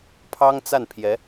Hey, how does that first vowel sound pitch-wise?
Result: high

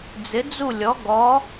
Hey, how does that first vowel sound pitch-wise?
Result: rising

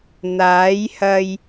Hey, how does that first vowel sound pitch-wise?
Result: rising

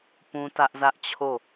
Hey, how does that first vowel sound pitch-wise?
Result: high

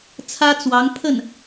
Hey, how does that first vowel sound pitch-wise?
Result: high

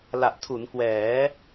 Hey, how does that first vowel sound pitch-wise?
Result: low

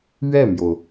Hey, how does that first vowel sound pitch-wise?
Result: falling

